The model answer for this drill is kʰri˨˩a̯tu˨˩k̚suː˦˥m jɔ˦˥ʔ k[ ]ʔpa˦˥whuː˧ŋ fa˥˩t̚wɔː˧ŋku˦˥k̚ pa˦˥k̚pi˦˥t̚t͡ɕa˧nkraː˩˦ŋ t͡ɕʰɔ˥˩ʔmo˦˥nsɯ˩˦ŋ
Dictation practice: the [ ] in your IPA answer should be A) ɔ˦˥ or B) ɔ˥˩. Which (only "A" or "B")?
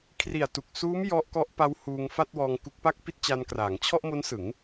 A